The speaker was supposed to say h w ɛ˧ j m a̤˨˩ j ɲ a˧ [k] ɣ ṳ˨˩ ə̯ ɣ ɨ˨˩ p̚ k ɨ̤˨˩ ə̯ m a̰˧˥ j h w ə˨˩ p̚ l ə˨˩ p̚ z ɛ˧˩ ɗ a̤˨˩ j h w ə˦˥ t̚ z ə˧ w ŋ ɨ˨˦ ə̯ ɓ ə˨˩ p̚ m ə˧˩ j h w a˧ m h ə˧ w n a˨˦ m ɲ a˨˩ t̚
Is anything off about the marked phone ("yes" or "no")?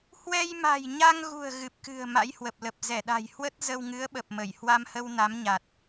yes